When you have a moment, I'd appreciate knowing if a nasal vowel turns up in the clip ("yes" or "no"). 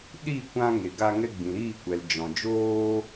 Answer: yes